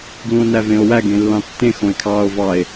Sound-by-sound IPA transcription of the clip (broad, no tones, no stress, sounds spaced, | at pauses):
ɡ l ũ o̯ n æ v ẽ o̯ w æ ɡ ẽ lː ɑ̃ tː ẽ x õ e̯ kʰ ɑː o̯ v ɑ e̯